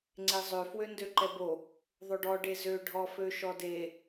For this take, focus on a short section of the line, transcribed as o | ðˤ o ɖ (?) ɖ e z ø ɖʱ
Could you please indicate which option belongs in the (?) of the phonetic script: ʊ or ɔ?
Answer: ɔ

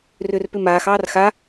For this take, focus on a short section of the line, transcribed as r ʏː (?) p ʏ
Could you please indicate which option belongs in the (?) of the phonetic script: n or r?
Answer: r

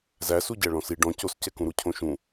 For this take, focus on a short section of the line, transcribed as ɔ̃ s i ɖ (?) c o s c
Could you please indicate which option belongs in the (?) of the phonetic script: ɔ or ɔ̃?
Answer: ɔ̃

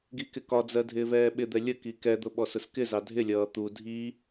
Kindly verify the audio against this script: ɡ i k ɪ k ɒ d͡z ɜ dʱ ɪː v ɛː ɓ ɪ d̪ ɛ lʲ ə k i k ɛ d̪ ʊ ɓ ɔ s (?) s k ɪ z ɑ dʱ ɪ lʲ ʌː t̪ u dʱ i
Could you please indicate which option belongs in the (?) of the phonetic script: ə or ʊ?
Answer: ʊ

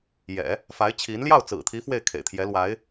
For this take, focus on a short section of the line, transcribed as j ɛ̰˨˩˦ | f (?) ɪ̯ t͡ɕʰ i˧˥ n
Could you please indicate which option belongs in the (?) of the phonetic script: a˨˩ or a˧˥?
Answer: a˧˥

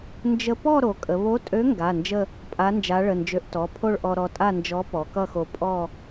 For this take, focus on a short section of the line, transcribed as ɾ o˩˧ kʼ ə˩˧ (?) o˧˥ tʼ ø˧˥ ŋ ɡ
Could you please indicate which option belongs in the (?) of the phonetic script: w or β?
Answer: β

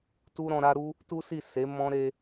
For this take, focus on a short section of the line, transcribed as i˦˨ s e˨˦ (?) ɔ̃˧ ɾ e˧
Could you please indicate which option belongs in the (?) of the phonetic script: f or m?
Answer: m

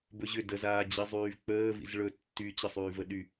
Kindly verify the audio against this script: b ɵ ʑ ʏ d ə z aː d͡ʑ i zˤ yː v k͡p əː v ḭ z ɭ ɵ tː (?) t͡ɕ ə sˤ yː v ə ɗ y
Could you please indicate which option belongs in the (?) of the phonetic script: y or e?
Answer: y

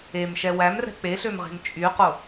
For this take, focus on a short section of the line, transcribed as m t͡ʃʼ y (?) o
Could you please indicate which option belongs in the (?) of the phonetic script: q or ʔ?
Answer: q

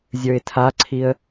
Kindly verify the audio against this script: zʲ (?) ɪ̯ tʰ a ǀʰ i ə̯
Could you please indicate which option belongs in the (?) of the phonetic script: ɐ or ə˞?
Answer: ə˞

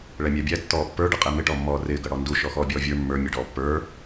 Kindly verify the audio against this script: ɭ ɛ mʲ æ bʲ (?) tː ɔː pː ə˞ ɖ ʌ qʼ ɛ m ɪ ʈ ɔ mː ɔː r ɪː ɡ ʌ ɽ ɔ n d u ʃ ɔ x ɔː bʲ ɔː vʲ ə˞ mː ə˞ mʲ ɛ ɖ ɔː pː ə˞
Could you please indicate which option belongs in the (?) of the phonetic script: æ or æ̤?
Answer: æ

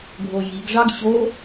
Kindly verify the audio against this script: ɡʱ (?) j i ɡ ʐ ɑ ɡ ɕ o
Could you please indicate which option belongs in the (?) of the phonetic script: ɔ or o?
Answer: o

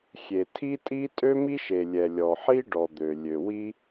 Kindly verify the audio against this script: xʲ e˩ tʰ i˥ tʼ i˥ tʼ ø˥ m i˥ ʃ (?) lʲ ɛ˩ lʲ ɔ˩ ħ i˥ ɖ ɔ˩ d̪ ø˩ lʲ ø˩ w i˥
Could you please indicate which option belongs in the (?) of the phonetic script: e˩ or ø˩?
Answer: e˩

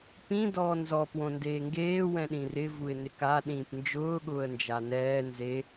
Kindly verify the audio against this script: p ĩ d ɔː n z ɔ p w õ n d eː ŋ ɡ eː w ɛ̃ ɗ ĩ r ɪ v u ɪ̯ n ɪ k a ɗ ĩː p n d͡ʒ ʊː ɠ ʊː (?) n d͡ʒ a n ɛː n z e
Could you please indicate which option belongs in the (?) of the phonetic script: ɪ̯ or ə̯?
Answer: ə̯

